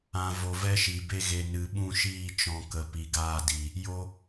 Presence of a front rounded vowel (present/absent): absent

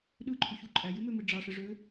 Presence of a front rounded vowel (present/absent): present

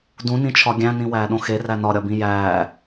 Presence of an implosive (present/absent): present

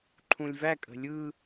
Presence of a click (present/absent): present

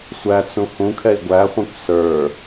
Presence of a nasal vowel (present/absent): present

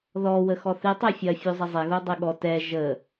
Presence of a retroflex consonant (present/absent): absent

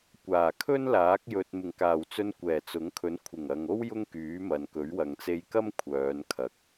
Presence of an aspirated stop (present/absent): present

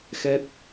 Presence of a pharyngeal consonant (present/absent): absent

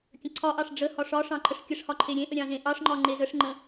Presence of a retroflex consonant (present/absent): present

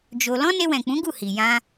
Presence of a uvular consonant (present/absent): absent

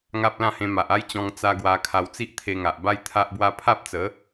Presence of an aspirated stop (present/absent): present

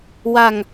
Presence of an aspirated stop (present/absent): absent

